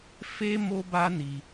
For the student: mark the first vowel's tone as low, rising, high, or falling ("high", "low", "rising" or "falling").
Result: high